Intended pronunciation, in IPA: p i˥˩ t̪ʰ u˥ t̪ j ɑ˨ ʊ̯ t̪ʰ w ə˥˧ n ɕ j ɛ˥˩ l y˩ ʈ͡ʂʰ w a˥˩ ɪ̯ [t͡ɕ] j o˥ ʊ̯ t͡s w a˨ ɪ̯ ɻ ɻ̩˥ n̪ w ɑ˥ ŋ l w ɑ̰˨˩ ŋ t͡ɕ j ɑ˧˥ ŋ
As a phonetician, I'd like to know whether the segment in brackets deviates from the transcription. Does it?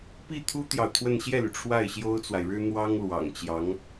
yes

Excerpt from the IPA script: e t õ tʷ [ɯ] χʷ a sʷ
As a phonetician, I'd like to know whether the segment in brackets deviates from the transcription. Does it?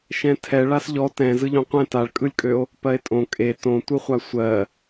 no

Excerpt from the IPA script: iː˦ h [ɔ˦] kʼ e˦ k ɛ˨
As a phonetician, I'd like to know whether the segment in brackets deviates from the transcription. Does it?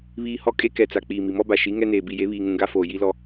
no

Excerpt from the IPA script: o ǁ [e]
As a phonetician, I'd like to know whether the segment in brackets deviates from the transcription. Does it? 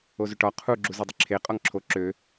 yes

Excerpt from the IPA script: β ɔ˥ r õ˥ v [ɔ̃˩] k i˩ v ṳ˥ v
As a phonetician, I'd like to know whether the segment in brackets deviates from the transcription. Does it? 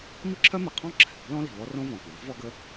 no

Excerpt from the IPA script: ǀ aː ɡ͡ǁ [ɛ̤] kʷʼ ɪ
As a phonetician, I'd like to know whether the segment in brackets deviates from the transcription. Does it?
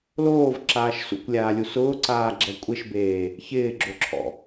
yes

